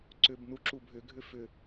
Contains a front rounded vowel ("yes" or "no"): yes